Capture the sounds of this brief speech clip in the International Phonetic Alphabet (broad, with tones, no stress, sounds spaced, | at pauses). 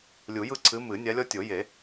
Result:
lʲ u˨˩˦ j ɯ˦ ǀʰ ɨ˨˦ m ɨ˨˩˦ nʲ a˨˦ lʲ ɔ˦ tʲ o˨˩˦ j e˨˩˦